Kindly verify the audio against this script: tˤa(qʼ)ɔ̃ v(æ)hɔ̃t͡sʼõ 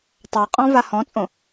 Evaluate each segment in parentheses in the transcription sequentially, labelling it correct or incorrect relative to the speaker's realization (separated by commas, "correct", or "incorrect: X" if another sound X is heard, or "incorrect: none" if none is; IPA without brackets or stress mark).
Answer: correct, incorrect: a